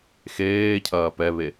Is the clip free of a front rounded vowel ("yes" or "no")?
yes